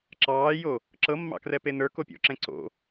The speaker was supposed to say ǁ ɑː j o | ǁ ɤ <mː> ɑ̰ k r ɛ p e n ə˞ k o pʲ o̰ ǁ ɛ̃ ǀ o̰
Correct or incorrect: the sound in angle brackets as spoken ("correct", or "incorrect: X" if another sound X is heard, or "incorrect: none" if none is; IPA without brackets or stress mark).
correct